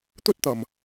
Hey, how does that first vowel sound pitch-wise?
high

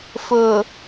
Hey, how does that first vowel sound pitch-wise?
low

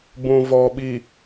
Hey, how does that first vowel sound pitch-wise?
low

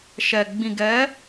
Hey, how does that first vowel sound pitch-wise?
low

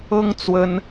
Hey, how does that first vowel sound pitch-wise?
high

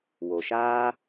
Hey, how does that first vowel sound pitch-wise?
low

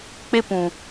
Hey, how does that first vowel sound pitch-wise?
high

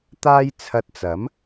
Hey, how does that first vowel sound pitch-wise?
high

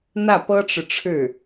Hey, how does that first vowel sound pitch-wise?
falling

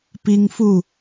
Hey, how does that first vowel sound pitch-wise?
high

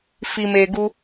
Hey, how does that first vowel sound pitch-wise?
low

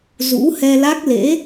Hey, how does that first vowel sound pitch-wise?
rising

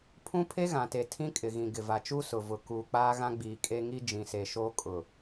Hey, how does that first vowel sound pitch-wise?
high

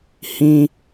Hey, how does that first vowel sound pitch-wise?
high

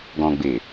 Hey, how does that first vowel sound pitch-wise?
low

